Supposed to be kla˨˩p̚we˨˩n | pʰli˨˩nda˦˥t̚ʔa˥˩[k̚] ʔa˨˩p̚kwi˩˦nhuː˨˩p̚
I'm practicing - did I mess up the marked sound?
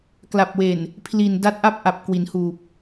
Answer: yes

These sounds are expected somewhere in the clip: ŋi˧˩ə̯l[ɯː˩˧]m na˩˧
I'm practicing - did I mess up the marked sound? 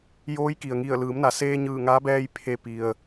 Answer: no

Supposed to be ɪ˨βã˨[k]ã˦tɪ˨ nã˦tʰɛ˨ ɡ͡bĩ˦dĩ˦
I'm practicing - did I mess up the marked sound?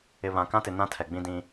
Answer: no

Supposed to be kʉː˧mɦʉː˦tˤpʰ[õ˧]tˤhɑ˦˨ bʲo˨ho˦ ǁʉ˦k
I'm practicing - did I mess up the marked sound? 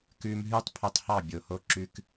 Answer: yes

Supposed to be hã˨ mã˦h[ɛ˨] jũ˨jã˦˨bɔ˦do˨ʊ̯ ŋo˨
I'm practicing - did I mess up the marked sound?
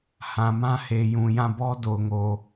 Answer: yes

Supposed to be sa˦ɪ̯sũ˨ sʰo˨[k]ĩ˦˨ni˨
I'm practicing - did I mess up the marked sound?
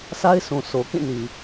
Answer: no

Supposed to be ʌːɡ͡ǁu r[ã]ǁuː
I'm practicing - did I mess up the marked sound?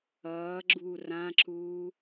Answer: no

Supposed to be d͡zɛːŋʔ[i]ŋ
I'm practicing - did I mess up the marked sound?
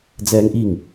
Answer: no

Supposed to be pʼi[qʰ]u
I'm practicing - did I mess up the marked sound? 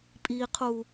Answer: no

